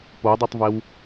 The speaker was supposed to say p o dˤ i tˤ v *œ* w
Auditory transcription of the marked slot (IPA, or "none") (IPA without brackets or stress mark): ɛ